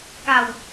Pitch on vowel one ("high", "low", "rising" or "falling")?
low